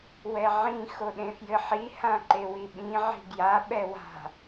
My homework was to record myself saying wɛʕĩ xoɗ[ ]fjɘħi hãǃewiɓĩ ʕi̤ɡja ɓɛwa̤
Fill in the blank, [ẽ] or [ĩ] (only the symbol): ẽ